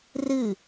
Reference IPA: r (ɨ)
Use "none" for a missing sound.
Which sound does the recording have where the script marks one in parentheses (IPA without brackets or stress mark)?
ɨ